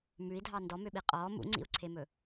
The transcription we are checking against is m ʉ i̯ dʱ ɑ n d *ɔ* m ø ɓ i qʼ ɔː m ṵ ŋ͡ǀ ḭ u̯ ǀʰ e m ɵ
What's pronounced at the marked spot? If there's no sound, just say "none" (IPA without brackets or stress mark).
ɔ